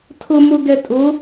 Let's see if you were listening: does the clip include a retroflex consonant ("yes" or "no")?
no